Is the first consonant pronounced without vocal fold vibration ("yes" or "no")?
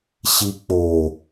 yes